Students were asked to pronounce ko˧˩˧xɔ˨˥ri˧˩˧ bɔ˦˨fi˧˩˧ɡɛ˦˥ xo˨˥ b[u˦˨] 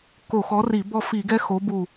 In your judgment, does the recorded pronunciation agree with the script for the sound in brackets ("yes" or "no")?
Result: yes